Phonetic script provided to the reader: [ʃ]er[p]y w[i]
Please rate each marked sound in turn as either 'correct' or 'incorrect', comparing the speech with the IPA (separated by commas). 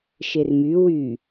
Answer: correct, incorrect, incorrect